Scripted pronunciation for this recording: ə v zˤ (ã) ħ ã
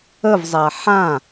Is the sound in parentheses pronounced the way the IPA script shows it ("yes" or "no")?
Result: no